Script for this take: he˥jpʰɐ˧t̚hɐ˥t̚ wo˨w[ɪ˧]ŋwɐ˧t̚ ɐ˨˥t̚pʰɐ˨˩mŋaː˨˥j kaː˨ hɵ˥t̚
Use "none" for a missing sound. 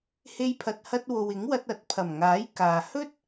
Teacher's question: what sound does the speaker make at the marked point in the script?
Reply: ɪ˨˥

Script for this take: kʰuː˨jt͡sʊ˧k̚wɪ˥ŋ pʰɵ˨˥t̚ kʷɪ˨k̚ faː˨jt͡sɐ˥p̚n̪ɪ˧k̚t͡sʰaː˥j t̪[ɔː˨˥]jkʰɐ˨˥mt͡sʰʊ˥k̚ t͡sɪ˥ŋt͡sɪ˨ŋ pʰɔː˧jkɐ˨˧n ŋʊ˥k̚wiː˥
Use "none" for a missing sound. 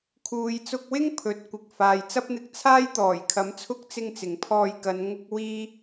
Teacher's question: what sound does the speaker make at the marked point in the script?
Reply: ɔː˨˩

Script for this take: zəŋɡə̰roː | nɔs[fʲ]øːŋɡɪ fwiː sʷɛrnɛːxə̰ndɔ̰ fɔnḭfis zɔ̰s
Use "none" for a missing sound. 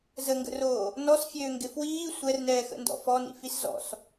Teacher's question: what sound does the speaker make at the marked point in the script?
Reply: fʲ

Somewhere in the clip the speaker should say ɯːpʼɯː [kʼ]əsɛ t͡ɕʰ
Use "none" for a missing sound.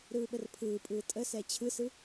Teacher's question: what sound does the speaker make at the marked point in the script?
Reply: tʼ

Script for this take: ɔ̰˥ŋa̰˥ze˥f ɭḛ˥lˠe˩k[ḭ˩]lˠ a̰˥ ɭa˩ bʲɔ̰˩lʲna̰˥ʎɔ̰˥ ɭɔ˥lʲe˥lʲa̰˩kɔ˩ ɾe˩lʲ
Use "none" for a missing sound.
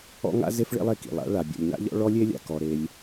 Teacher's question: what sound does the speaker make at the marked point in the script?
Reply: ḭ˩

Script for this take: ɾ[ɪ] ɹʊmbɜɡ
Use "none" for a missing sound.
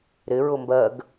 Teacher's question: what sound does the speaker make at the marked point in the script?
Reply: ɪ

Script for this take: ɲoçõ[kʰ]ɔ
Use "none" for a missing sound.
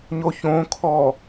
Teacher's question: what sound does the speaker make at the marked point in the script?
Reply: kʰ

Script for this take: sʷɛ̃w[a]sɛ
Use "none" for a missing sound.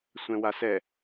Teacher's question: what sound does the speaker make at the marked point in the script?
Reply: a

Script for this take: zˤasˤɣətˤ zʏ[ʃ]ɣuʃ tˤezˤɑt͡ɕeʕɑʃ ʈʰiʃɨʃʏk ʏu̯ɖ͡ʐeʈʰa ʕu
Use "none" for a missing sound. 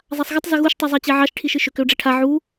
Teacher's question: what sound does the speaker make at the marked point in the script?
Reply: none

